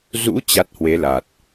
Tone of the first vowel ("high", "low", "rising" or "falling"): rising